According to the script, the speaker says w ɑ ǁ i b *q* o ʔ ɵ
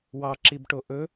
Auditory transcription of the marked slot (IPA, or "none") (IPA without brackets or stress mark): ʈ